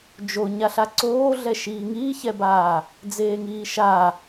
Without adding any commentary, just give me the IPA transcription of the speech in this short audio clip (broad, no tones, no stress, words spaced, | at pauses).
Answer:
d͡ʒo ɲaɬaǀoːɮɛ ʃiːŋiːçɛbaː | d͡zeːŋiːʃa